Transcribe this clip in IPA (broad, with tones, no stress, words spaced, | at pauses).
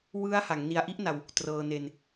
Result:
wɯ˦˥a̯ha˩˦ŋ ni˧a̯ ʔi˦˥ʔna˧w | trɤː˧ne˧n